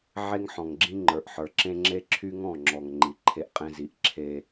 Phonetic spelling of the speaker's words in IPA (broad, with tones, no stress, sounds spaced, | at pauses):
ʕ e˦ ŋ ħ ɔ̃˨ ŋ ɡ͡ǁ ĩ˦ ŋ͡ǃ ə˞˨ ʔ ħ ə˞˨ ǁ ẽ˦ ŋ͡ǁ e˦ ǁʰ y˦ ŋ ɔ̃˦˨ ŋ͡ǁ ɔ˨ ŋ ŋ͡ǃ i˨ ǃʰ e˦ ʔ qʼ ẽ˦ z i˨ ʔ ǁʰ e˦